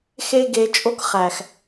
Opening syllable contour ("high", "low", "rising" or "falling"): high